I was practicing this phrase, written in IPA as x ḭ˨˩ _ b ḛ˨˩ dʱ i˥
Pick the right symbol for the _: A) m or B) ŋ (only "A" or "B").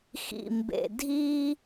A